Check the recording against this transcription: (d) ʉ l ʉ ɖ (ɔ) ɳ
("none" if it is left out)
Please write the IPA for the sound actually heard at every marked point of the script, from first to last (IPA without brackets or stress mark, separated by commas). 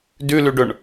d, ɵ